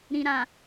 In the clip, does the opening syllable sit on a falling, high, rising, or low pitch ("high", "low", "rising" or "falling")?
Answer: low